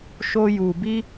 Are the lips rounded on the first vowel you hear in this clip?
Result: yes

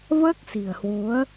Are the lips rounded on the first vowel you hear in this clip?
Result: no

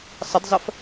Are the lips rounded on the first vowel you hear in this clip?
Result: no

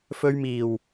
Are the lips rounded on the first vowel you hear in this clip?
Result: yes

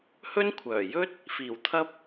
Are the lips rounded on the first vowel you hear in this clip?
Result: yes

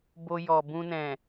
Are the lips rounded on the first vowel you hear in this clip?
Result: yes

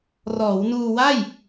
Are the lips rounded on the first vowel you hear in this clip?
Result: yes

